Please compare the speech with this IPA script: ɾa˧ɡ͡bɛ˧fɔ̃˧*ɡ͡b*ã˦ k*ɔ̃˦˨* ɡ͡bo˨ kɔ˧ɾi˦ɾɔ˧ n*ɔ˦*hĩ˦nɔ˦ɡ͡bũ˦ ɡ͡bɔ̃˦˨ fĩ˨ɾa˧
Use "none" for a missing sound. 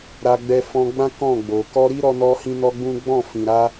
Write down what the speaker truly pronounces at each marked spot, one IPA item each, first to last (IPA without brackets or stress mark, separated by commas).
ɡ͡b, ɔ̃˦˨, ɔ˦